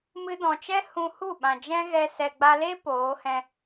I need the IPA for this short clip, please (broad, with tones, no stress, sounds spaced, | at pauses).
m ɨ˧ d ɔ̃˨ t͡ʃ ɛ˦ h ũ˧ h u˦˨ ɓ ã˨ d͡ʒ ɛ̃˦ ɣ ɛ˧ s ɛ˨ ɡ͡b a˧ l e˦ p oː˨˦ h ɛ̃˧